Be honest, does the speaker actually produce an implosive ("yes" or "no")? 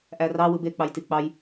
no